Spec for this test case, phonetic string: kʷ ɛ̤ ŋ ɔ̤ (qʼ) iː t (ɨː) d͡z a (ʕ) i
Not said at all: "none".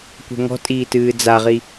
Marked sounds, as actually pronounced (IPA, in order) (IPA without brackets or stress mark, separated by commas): tʼ, ɨː, ʁ